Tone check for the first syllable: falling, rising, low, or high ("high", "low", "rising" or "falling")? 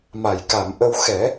low